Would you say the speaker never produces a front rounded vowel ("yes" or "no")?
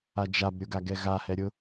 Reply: yes